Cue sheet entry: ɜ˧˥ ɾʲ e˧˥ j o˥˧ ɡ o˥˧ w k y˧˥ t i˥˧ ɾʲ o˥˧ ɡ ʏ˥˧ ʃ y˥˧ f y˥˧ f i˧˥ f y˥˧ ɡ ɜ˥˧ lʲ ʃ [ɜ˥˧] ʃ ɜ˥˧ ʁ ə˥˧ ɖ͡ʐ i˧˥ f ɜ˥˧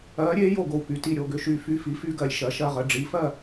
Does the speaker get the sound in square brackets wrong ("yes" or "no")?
yes